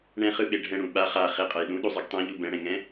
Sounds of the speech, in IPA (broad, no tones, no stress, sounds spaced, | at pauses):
ɳ ɛ̃ χ ɯ ɓ e ɖʱ ɛ̃ ɽ ũ ɓ a χ a χ e qʼ ʌ j ɗ ũ ɗ u zˤ ɯ ɡ tˤ ɛ̃ ʎ u b ɛ̃ ɽ ɛ̃ ŋ ɛ̃